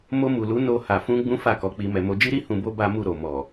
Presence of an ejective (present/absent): absent